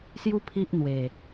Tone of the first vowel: high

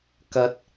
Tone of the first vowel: rising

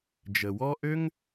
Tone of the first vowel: low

